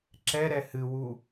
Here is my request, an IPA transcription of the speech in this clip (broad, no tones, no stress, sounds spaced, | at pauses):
ǁ ɛ ɾ ɛ h ɨ w u